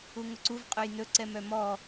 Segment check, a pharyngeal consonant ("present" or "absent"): absent